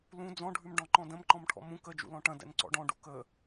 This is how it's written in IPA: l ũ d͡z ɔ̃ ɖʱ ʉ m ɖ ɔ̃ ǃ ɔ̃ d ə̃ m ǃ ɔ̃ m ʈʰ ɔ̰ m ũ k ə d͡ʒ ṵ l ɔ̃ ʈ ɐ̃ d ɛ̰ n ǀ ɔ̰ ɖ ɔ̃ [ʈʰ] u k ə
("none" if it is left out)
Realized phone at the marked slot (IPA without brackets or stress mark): ɖ